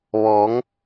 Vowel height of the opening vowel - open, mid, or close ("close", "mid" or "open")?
mid